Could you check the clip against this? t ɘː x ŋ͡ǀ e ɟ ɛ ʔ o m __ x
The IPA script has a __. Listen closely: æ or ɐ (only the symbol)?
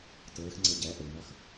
ɐ